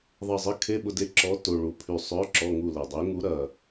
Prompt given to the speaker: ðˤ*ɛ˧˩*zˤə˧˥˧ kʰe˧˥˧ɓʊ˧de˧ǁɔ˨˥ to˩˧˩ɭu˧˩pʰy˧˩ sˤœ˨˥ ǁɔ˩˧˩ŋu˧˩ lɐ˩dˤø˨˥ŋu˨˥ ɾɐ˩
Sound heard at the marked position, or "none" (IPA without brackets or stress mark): ə˧˩